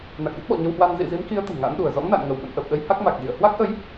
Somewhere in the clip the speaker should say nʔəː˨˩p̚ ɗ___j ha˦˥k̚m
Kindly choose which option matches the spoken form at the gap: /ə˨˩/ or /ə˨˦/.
ə˨˦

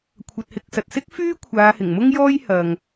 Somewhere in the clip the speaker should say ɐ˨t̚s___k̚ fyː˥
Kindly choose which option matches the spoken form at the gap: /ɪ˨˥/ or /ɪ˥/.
ɪ˥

